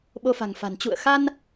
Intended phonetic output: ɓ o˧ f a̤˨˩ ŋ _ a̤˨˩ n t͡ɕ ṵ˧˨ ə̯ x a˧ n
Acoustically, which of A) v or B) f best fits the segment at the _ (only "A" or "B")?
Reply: B